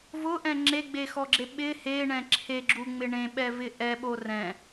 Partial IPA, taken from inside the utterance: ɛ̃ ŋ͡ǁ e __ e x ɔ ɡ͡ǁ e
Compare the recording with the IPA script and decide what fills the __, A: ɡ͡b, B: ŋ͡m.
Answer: A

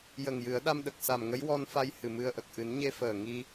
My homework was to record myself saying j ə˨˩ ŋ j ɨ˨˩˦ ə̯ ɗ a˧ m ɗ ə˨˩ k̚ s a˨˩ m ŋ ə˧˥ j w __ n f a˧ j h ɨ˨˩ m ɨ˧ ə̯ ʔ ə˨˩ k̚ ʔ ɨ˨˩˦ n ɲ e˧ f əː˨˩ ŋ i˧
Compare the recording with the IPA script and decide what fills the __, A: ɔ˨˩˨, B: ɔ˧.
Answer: B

